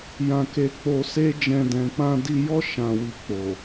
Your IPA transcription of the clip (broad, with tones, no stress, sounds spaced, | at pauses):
j ã˧ k e˧ k͡p o˧ s e˦ d͡ʒ ɛ̃˧ d ɛ̃˨ k͡p ã˧ d i˧ j ɔ˦ ʃ ã˧ w i˧ k͡p o˨